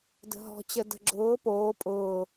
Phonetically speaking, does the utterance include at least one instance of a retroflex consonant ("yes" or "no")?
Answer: no